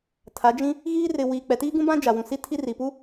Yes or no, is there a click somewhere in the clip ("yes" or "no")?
no